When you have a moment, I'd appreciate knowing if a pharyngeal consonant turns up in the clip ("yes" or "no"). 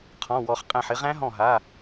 yes